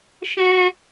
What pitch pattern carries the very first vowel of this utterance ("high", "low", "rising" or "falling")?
high